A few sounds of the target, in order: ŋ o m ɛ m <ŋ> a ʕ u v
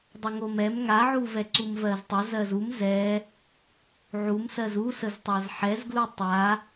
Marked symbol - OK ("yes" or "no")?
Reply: yes